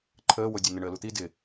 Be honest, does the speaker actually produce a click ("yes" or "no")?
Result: yes